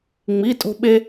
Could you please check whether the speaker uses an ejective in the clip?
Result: yes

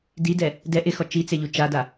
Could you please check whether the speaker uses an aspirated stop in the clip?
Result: no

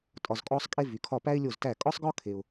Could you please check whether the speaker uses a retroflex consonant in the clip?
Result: no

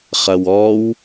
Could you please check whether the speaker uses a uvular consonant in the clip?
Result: yes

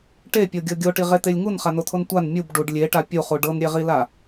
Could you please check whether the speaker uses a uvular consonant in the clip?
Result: yes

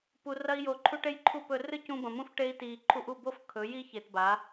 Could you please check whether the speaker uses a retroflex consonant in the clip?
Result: yes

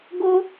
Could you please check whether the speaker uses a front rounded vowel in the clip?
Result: no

